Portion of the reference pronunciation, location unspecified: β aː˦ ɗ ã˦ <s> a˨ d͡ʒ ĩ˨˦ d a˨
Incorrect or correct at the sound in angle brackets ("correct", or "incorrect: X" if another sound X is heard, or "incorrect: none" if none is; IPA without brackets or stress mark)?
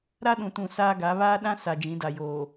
correct